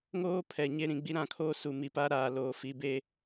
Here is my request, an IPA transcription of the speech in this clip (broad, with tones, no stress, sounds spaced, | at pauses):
ŋ oː˦ pʰ ɛ˨ ɲ e˦ ɾ ĩ˨ ɡ͡b i˦ ɾ ã˦˨ kʰ oː˦ s u˨ m i˨ p a˦ ɾ aː˨ l oː˨ f i˦ b e˦